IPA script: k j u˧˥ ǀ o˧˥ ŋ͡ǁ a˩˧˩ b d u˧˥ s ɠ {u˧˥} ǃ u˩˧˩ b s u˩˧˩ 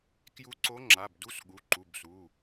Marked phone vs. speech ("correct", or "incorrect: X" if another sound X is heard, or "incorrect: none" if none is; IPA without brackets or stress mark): incorrect: u˩˧˩